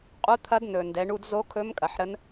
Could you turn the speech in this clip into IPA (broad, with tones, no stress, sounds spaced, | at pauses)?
qʼ u˧˥ t̪ʰ ɐ˧˥ d n ɵ˩ n d ɛ˩˧ ɳ u˧ d z o˧˥ kʰ ɵ˧˥ m kʼ ɐ˩ ħ ɾ ə˧˥ n